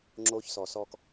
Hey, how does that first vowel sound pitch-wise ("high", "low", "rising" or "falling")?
high